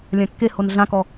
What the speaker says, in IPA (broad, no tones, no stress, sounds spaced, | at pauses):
lʲ ã kː e h o n ɮ ã k ɔ